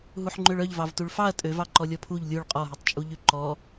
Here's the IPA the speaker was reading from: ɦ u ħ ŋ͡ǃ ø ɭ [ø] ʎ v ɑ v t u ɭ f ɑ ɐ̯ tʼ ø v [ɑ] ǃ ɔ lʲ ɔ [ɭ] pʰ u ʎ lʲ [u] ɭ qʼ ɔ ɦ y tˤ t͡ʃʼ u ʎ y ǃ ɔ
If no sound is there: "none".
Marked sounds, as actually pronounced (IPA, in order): œ, ɑ, none, u

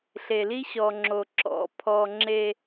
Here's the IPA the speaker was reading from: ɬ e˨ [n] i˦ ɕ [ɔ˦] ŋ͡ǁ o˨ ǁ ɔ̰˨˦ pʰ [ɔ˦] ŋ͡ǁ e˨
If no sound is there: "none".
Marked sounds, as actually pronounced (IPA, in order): l, ɔ˨, ɔ˨

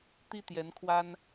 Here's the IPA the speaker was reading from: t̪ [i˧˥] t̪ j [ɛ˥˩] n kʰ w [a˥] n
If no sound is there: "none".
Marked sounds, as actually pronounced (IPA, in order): i˥, ɛ˧˥, a˥

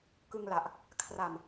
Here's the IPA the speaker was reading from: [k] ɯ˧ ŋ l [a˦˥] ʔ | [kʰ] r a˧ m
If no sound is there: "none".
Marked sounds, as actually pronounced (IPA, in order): k, a˨˩, kʰ

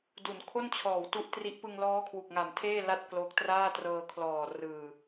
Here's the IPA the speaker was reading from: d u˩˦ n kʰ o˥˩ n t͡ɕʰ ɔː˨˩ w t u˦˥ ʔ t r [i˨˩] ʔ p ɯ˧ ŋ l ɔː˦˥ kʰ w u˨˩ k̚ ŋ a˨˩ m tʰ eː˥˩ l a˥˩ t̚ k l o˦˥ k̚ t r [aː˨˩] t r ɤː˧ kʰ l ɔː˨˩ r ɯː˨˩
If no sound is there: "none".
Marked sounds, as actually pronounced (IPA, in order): i˦˥, aː˥˩

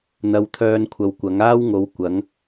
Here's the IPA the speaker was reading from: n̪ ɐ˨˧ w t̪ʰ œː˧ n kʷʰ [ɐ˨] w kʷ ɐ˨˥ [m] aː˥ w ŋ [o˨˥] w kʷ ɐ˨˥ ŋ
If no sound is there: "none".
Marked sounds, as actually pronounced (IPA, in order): ɐ˨, ŋ, o˨˥

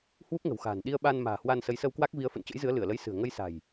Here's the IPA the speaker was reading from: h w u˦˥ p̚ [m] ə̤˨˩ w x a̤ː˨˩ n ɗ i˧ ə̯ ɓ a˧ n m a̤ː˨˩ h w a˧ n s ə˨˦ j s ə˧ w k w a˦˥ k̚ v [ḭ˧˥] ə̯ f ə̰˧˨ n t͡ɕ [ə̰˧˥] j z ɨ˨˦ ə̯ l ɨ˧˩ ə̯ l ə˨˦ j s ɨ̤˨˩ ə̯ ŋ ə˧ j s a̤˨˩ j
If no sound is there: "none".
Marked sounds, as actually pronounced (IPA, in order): ŋ, i˨˦, ə̰˧˥

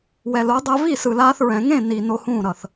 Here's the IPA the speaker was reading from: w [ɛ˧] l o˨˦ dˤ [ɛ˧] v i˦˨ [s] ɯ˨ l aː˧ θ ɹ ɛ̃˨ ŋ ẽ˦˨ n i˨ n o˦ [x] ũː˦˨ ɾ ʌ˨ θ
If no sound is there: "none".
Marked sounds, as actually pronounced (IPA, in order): ɛ˨, ɛ˧, s, h

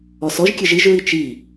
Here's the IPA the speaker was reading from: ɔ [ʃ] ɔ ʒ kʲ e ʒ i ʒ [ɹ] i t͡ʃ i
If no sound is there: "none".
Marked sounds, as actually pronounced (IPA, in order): s, ɹ

